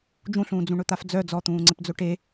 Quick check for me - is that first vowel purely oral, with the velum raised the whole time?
no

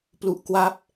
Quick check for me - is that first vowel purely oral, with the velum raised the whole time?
yes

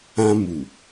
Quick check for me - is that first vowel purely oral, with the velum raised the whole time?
no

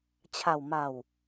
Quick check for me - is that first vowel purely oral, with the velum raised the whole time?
yes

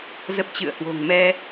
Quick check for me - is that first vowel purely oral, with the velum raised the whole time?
yes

